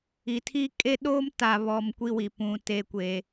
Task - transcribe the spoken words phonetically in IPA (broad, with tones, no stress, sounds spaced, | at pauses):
i˨ tʰ i˦ kʼ e˦ ɗ oː˦ m t a˨ β ɔ˨ m kʷ i˦ w i˨ p ũ˨ t e˦ kʷ e˦